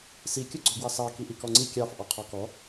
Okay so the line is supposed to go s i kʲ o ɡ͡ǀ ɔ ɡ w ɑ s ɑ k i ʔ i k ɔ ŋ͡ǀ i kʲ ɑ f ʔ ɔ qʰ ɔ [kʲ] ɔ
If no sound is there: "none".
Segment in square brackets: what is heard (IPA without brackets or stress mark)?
k